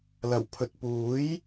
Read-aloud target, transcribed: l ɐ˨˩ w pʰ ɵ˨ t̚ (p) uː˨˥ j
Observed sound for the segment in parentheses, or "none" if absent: p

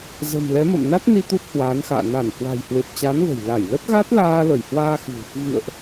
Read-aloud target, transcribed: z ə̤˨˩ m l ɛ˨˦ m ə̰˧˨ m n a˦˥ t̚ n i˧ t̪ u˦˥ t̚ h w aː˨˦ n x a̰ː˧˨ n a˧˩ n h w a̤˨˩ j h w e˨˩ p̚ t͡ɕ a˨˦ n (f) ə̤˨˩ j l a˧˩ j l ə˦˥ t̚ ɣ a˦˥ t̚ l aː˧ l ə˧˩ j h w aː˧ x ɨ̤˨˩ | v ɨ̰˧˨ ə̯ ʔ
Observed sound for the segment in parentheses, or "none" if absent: v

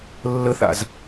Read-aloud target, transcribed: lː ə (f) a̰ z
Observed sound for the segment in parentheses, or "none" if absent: θ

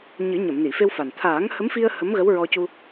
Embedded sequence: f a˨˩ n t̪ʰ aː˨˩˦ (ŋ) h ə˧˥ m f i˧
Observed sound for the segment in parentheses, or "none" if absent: ŋ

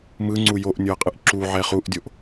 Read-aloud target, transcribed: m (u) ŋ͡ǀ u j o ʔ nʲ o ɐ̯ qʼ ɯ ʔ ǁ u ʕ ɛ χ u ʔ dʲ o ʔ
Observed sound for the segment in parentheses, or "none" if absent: ɯ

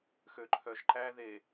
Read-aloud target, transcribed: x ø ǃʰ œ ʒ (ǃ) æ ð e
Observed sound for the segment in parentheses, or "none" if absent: ǃ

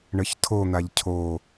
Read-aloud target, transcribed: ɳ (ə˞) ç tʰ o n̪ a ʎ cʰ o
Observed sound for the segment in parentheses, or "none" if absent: ə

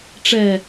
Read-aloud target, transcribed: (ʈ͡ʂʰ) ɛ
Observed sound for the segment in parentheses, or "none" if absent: ʈ͡ʂ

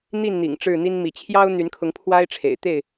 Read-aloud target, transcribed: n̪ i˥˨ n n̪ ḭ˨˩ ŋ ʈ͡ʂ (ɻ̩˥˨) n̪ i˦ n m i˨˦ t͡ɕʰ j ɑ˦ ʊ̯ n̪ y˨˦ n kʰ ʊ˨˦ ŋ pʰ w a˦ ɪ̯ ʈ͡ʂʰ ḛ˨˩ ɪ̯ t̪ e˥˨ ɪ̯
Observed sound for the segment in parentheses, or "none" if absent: ɻ̩˥˨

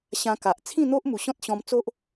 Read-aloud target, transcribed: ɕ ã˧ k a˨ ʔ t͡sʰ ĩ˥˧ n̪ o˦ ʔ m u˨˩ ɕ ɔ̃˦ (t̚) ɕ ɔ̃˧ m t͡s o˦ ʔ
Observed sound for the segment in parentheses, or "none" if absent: t̚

